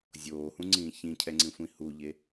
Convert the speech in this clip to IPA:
zʲ oː h ũ ŋ͡ǀ ĩː ç ĩ cʰ ɛ ŋ͡ǀ ĩ sʷ ĩ h u ʎ e

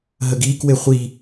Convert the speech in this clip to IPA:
ɦ ə ɡ iː k w e χʷ i

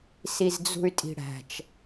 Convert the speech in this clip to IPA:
s i z d͡z ṳ y̯ tʼ i̤ ɽ æ̤ t͡ʃ

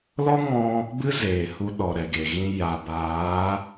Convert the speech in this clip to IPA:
l ɔ˦ ŋ ɔ̃˦ | b ɨ˦ z eː˨ h u˧ ɗ ɔ˨ ɾ ɛ˨ ɡ e˨ ɣ ĩ˧ j a˨ b aː˨˦

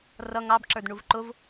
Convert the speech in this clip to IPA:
r ʌ ŋ ɑ b ǁ ə˞ d ɳ u v ǃ ʊ v

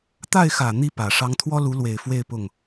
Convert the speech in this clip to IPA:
t̪ a˥˩ ɪ̯ x ä˨˩ n̪ i˥˩ p ä˨˩ ʂ ɑ˧˥ ŋ t̪ʰ w ɔ˥ l u˧˥ l w e˨˩ ɪ̯ f w e˥˧ ɪ̯ p ʊ˥˩ ŋ

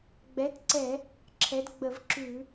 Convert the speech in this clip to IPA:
ɡ͡b ɛ˨˥ t ǀ ɛ˧˩˧ | ǁʰ ɛ˨˥ d ɡ͡b ə˧˩˧ v ǁ ʉ˧˩˧

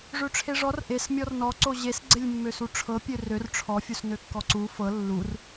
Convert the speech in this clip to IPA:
ʐ ø ʈ͡ʂʰ e ʐ ɔ r ʔ e s mʲ ɔ r n ɔ ǀ o ʑ e s ɡ͡ǀ e lʲ mː ø s u ʈ͡ʂʰ ɤ pʲ ø r ø r ʈ͡ʂʰ ɔ fʲ u s n ø kː ɔ ǀ u f ɤ lː u r

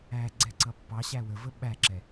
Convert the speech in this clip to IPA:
æ ɡ͡ǀ ɛ ǀ ʌ pː ɑ ɕ æ w ə v ə ɓ æ ǁ ɛ

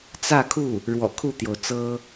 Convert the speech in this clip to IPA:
t͡s ä˥˧ kʰ u˥˩ | ɻ w ɔ̰˨˩ kʰ u˥˩ t̪ j o˩ ʊ̯ t͡s ɤ˥

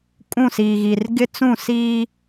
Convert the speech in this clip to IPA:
kʼ ũ˦˨ s iː˨ ɣ i˨ r ɡ ɪ˦ t͡s ũ˦˨ s iː˦

